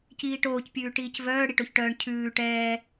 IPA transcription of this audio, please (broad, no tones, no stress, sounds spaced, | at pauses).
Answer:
c iː ʈ oː c pʲ ʉː ʈ iː c v œː ɽ i ʈ o ç ʈ œː ɳ cʰ ʉː ʈ ɛː